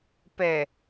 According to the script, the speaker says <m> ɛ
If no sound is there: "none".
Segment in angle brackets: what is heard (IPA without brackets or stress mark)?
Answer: p